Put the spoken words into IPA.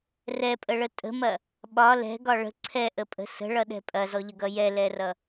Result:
rɛpʼəɭə tʼə̤mɐ | ɓɒ lɛ̤ɡɒ ɭə̤ ǀʰɛʔəpʼə̤ sə̤ɭʌɗɛ̤ pʼɐzɔʎəɡʌ jɛlɛrʌ

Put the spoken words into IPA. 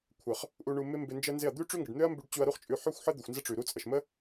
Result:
kʷʰə˨χ | ʔu˧ɳu˧mɪ˦mbɪ˧ nd͡ʒə˦nzɪ˦˨ɐ̯ d̪ʉ˦ ʈ͡ʂʉ˦ ŋɡə˨ɖn̪ø˦ɐ̯mbʉ˧ɖ t͡ɕu˧ɐ̯ ɾu˦χt͡ʃʼʉ˧ ħø˦xʷħə˦d̪ɪ˨xʷ nzə˦ʈ͡ʂʉ˨ɾu˦t͡sʼə˨ʃ mə˦

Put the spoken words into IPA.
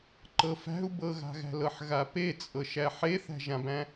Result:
ǃɤfæ̤u̯ bɤɣa̤ɣæ̤lɤħ ɣapet͡sʼɤʃæ ħeθæ̤ʒãbæ̃

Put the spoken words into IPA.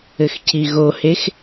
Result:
ɘxcʰiɣohex

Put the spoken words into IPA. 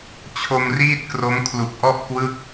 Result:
t͡ɕʰo˧mriː˥˩t̚kro˦˥m kʰlu˨˩k̚ʔɔ˥˩ʔ kwɯ˥˩k̚

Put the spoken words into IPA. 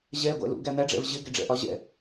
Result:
ʑɛ ɡʷæ̰lṵ ɡæn̪æɖ͡ʐɛ̰v ʑɪɡɛɖ͡ʐɛ̰ʔɒ ʑɛ̰

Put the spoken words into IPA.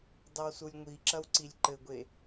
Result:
dˤɐwsulʲŋʷiǁɐw ǀilʲǃɘɡʷe

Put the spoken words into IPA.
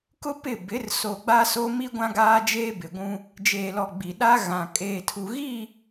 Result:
kʊ˦ pɪ˦˨bɪ˨˦r so˨ɡ͡ba˦so˦mi˦ ɡʷã˦ɡaː˦d͡ʒeː˦ bɪ˨ɡʷũ˦ | d͡ʒeː˨lɔ˨ ɡ͡bi˨ɗa˦ ɣã˨ kʼeː˨tʰu˨ɣi˦˨

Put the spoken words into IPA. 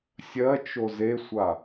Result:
sʲɜt͡ʃo zesʷa

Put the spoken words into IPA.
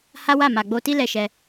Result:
ha˦wa˦˨ ma˨ɡ͡bo˧ti˦ lɛ˦˨ʃɛ˧

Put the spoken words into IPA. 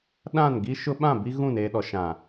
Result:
ɗã˦˨nɡi˦ ʃʊ˦ ɓã˦˨ bi˦ɣũ˦˨neː˨ɗɔ˨ ʃã˨

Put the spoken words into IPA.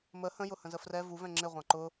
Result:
mə hə̃jʊ hə̃zəfrɛ vuvɛ̃ ŋ͡ǁɪ ʁʷɑ̃ǃʊ

